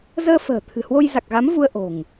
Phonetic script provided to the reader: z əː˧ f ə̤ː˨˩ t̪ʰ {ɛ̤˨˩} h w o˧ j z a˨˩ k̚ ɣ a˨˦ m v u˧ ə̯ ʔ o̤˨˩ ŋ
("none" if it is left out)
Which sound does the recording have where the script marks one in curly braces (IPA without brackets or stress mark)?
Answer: ɨ̤˨˩